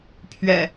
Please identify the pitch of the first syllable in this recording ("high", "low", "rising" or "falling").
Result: low